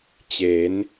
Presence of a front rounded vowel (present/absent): absent